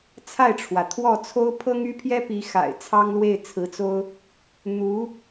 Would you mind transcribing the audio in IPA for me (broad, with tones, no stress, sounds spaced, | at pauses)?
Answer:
t͡sʰ a˥˩ ɪ̯ ʈ͡ʂʰ w ä˩ t̪ʰ w ɔ˥˩ t͡sʰ o˥ ʊ̯ pʰ ɤ˥ ŋ y˥ pʰ j ɛ˥ p i˧˥ x a̰˨˩ ɪ̯ t͡sʰ ɑ˥ ŋ l w e˥˩ ɪ̯ t͡sʰ ɹ̩˧˥ t͡s o˥ ʊ̯ | n̪ u˧˥